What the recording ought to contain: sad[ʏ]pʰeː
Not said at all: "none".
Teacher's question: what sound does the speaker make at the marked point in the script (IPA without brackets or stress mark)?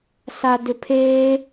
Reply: ʏ